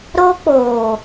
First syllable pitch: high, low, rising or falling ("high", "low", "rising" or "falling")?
high